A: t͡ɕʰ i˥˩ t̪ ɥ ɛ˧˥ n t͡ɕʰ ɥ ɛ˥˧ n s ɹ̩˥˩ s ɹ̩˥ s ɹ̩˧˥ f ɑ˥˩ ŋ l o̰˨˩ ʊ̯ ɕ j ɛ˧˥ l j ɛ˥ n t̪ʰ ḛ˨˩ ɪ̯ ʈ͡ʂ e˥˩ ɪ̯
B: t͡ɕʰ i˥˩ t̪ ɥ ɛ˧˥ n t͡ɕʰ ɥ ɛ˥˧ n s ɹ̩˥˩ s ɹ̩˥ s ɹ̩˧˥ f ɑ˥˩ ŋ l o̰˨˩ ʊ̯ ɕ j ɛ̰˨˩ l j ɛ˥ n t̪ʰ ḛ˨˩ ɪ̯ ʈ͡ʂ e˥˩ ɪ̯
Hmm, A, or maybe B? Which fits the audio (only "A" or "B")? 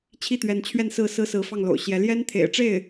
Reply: A